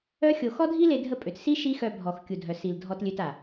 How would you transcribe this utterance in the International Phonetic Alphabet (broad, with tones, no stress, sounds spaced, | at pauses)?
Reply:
œ˦ xʲ o˧ x ɔ˦ dʱ i˦ l e˧ dʱ ə˦ pʼ ø˨ t s i˦ ʃ i˦ x œ˧ bʱ ɔ˨ x kʲ u˨ dʱ œ˨ s i˨ l dʱ ɔ˧ t lʲ ø˧ t a˨